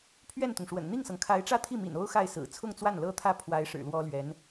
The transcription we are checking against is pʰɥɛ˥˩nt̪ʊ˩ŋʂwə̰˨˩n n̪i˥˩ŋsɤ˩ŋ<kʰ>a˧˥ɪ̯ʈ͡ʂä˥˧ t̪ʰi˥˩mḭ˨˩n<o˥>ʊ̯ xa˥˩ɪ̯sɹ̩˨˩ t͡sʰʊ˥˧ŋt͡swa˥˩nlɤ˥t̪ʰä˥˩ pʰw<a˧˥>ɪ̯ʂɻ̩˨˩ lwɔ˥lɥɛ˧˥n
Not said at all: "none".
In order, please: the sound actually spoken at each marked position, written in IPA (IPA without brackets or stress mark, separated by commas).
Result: kʰ, o˥, a˧˥